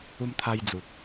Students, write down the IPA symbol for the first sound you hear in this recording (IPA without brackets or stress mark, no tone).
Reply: u